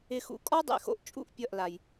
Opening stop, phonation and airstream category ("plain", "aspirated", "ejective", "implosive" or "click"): ejective